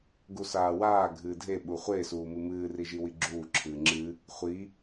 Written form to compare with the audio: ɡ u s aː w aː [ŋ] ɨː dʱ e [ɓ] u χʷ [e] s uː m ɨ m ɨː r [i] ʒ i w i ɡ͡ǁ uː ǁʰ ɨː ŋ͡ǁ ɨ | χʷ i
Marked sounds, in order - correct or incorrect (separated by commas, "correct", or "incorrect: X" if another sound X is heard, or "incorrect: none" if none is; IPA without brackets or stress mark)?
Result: incorrect: ɡʱ, correct, correct, correct